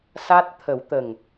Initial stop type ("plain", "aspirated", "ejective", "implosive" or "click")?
plain